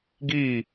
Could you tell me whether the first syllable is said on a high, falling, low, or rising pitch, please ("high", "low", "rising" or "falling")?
falling